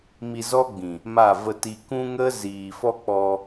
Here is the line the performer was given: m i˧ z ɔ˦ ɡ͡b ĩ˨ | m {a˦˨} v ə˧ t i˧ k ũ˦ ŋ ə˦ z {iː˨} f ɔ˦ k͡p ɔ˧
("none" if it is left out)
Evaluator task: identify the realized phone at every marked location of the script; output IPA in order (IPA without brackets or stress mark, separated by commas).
a˦˨, iː˨